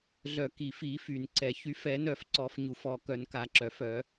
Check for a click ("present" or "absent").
present